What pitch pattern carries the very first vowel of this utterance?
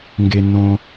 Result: low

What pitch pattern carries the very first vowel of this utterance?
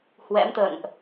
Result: rising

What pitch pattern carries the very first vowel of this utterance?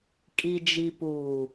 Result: low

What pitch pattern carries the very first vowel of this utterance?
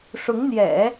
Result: rising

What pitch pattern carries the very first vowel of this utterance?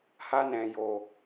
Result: high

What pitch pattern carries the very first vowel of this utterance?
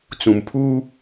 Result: low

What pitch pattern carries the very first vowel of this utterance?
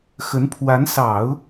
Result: rising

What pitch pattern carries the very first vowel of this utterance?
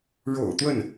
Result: low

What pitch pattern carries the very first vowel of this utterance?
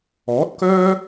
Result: rising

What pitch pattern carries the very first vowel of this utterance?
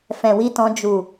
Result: low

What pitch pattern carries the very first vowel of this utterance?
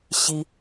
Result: high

